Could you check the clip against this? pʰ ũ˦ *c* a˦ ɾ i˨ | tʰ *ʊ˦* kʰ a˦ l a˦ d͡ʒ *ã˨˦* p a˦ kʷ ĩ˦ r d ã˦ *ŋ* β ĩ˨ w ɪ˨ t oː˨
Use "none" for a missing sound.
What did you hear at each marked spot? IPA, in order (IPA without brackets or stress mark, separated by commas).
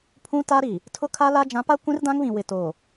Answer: t, ʊ˦, ã˨˦, ŋ